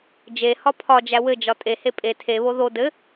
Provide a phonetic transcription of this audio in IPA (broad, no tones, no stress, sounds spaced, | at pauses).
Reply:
d͡ʒ e h ɒ pʰ ɒ d͡ʒ æ w ɘ d͡ʒ ɒ tʼ e h e pʼ e tʰ e β o ð o d ɘ